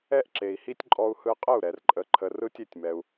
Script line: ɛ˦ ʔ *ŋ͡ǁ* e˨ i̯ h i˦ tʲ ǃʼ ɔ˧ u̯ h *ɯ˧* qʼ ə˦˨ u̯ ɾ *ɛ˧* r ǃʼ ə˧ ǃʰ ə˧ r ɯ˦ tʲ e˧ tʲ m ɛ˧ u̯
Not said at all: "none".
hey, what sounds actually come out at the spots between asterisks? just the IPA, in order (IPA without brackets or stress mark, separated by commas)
ǁ, ɯ˧, ɛ˨